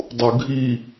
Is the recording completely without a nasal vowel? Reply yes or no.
yes